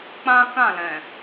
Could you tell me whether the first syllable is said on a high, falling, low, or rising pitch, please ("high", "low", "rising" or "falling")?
high